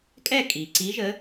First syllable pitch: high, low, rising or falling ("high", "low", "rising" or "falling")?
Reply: falling